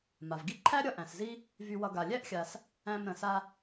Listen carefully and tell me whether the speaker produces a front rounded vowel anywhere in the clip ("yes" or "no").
yes